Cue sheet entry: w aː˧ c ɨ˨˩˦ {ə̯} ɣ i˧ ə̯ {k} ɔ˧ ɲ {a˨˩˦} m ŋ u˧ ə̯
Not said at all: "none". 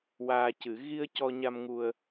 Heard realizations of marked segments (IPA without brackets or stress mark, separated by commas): none, c, a˧